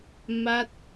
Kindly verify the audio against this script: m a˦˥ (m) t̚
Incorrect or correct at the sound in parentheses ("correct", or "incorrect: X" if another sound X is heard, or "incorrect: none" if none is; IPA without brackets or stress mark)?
incorrect: none